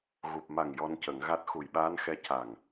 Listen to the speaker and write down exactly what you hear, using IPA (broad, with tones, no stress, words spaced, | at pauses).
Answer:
ɣu˨˩p̚ma˨˩ŋ jɔ˧ncə˨˩˦ŋɣa˦˥t̚ xu˨˩jɓaː˧˥n xɛ˧˥ca˨˩ŋ